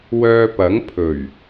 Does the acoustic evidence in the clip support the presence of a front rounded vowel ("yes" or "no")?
yes